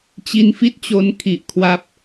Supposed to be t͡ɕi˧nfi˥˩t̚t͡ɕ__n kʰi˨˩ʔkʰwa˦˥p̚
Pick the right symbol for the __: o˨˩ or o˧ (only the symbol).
o˧